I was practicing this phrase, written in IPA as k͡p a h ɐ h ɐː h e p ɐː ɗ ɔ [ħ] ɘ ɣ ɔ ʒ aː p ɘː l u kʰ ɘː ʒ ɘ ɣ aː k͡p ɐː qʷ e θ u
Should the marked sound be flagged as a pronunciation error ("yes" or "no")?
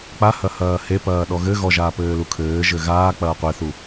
yes